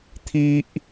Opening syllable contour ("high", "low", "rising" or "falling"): high